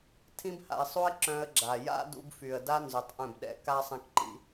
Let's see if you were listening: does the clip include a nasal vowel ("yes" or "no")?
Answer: yes